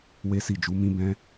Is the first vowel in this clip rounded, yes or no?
no